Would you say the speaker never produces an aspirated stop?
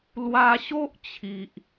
no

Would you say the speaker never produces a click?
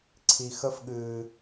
no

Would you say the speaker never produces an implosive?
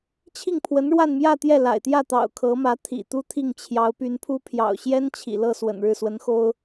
yes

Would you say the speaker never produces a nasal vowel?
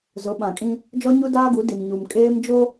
no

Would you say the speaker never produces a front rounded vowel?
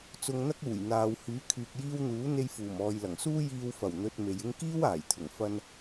no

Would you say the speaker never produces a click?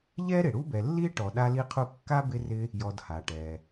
yes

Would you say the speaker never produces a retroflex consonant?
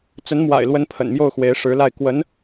no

